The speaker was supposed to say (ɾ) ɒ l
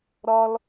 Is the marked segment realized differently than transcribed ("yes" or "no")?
no